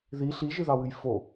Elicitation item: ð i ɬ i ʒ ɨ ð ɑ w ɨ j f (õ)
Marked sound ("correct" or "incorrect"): incorrect